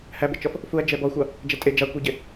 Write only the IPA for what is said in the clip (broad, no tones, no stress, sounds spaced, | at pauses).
h æ b ɪ t͡ʃ ɔ f | f u ɐ̯ d͡ʒ ɛ b ɔ xʷ ɑ | d͡ʒ ɛ tʼ ɪ d͡ʒ ɑ kʷ i ɟ ɪ